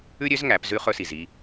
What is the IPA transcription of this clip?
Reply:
ʉ˥ ɾʲ ø˧˥ z ŋ æ˩˧ p z ʉ˧ χ ɵ˧ s i˩ z i˧

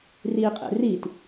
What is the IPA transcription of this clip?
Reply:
r i qʼ ḛ r i t

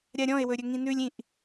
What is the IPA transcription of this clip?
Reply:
ɾʲ a ɾʲ ɔ̃ e̯ w ɵ ɾʲ ɵ ŋ ĩ n ʉ lʲ ĩ ʔ

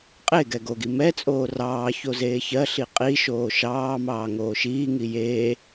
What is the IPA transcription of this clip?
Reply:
qʼ e ɡ ɛ ɡ o ɡ i m ɛ t͡sʼ oː r ɑː ç o z eː ç ɜ ɬ i qʼ i ʃ oː ʃ ɑː m ɑː ŋ oː ʃ iː ŋ i j eː

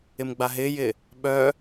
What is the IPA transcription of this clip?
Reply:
ɪ m ɡ͡b a ɦ ɪː j ɪː | ɓ œː

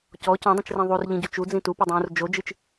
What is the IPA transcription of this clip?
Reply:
c ɔ c ɔ̃ dˤ ũ t͡ʃ r ĩ ðˤ u r ʎ ĩ ɟ u t͡ʃ u d͡z ĩ t u p i dˤ ũː r d͡ʒ o d͡ʒ ɨ t͡ʃ

